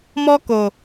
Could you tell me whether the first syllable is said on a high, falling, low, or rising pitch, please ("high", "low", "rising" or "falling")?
high